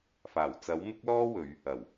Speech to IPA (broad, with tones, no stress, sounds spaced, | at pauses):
f aː˨˩ w t͡s ɐ˨˥ w m ɪ˥ k̚ l ɔː˥ w ɵ˨˧ ɥ | ɐ˨˩ w